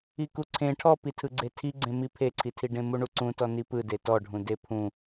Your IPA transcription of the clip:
ikuǀʰẽ ʈʰɔpitʰɯɡ͡ǀe tʰiɡ͡ǀẽmi pʰeǀʰitʰiɖẽ muɳuǀũtɔ nipɯde tɔɖʱũ depʰũ

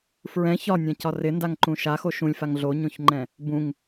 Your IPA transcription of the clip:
fɹɛ̃ çɒnʲãcɒ rɪndaŋǃũ ʃaxo ʃũlʲfaŋ ɮoɲõçŋ͡ǃɛ̃ | bũŋ

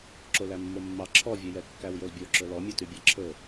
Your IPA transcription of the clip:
ǁolæmːomːɑ ǁʰɔvʲɵjɛ kːæwjɵlbʲoǁɵ lɔmʲɛ tybʲæǁʰɵ

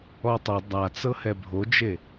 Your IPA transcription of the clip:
ɔtˤɛ dˤat͡sɤhɛ bʱod͡ʒe

